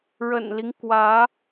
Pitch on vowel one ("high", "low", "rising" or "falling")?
low